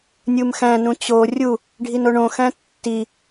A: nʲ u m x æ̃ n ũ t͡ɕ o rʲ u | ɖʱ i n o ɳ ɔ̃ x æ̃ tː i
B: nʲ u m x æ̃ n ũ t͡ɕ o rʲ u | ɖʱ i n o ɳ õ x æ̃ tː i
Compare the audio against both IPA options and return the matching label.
B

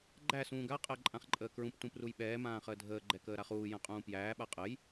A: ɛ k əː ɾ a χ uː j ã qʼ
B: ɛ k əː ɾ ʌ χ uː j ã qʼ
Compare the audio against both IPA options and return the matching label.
A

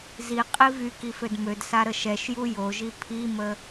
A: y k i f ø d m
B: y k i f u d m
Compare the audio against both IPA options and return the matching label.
A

